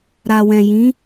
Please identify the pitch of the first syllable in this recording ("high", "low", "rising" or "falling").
low